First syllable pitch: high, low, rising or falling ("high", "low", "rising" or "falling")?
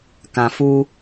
low